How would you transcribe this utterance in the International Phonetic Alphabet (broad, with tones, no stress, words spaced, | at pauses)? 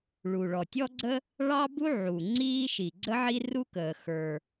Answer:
ɭu˩ɭɔ˩tʲɔ˥ɡ͡ǀə˥ | ɭɑ˥bu˥ ʕu˩ ŋ͡ǀiː˥ʃi˩ ɡ͡ǀə˥ʕi˥ ru˥kəː˩ xə˞˩